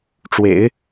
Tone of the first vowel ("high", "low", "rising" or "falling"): low